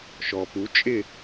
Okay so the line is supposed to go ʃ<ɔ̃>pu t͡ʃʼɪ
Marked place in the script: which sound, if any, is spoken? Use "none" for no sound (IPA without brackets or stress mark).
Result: ɔ